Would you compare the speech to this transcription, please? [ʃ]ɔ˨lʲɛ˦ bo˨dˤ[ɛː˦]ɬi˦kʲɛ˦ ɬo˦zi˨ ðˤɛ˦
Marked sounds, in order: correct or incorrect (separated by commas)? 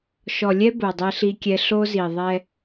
correct, incorrect